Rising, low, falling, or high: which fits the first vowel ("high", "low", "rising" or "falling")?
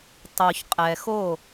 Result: low